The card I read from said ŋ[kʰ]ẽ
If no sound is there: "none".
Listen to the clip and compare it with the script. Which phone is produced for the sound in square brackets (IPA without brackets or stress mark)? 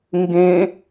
ɡ